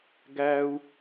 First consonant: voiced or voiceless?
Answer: voiced